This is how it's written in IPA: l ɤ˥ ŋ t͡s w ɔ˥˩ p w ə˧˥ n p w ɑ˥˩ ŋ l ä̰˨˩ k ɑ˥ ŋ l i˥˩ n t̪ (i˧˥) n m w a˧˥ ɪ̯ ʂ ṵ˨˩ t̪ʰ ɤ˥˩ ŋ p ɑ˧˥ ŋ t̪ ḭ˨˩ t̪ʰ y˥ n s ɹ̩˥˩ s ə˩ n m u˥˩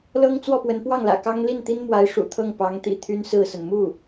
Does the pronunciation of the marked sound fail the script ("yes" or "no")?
yes